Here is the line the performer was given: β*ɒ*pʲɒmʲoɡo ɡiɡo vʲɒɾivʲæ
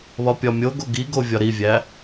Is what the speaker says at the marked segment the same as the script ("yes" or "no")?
yes